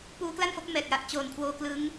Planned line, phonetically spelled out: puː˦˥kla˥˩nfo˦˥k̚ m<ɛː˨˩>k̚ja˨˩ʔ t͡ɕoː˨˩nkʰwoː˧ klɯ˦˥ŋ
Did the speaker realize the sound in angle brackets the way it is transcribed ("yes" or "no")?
yes